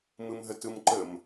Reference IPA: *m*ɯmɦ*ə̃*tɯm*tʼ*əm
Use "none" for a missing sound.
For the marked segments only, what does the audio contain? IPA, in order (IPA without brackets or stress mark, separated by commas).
m, ə, ǃ